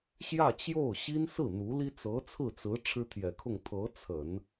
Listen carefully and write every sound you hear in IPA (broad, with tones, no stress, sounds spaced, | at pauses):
ɕ j ä˥˧ t͡ɕ j o˥˩ ʊ̯ ɕ i˥ n s ɹ̩˥˩ n̪ u˧˥ l i˥ t͡s ɤ˧˥ t͡sʰ ɹ̩˥˩ t͡s ɹ̩˧˥ ʈ͡ʂʰ ɻ̩˥ t̪ʰ j ɛ˨˩ kʰ ʊ˥˩ ŋ t̪ʰ ɤ˧˥ t͡sʰ ə˨˩˦ n